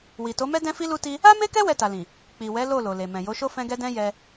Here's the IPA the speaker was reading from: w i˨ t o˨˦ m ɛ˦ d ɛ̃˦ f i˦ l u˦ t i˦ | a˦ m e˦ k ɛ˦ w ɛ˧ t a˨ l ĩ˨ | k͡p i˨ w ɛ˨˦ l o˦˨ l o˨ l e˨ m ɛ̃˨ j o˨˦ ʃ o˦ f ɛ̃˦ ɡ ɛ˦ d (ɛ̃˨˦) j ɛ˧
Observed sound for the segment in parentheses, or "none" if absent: ɛ̃˦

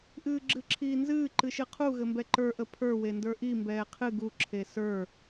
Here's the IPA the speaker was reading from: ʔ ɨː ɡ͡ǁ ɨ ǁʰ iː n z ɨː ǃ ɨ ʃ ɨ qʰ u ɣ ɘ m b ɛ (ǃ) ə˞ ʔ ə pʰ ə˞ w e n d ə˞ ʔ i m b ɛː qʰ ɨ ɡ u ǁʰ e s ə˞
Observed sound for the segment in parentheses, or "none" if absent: ǃ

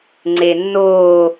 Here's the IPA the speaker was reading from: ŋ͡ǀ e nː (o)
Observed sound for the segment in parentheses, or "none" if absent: o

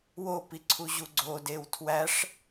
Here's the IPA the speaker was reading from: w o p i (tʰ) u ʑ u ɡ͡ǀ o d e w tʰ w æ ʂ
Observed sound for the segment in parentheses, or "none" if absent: ǀʰ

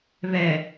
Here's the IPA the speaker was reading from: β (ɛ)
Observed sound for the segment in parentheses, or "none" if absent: ɛ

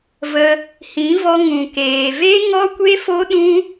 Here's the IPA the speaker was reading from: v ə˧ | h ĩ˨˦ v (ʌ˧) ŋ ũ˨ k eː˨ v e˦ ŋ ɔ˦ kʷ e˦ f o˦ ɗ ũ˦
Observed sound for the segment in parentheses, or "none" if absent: ɔ˧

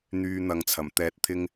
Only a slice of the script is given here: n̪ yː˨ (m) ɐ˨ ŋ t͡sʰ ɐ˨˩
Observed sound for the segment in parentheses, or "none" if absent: n̪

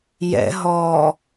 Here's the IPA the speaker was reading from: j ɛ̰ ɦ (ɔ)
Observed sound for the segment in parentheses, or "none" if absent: ɔ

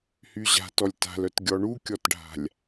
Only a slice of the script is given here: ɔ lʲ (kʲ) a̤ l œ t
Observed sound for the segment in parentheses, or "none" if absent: t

